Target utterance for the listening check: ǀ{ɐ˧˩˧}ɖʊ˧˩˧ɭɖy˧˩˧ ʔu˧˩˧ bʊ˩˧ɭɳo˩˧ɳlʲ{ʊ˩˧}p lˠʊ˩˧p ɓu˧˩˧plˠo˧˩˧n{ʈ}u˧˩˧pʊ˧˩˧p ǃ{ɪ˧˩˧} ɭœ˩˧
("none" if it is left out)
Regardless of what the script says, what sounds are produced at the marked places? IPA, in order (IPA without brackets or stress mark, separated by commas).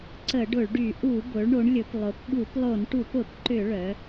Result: ə˧˩˧, ʊ˩˧, ʈ, ʏ˧˩˧